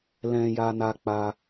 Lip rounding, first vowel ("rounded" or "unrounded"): unrounded